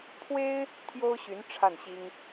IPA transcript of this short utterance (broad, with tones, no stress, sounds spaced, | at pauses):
pʰ w e˥ ɪ̯ | t̪ʰ j o˥ ʊ̯ ɕ y˧˥ n ʈ͡ʂʰ a˥˩ n ɕ i˥ ŋ